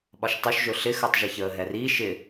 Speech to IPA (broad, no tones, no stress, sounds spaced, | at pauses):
ɓ ɒ ʃ tˤ u ʃ ʒ ɵ ɬ ɪ x əː tˤ ʒ ɪ ç əː ɦ ɛ r iː ʃ ɪ